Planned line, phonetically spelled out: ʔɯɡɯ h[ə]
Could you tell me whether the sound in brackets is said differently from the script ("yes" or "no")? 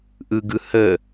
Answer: no